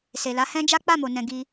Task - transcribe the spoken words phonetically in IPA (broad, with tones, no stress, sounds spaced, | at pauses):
s e˨ l a˨˦ h ɛ̃˦ d͡ʒ a˦ k͡p a˦˨ m o˨ n ɛ̃˨ ɡ i˧